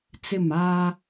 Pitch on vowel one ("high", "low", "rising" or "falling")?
falling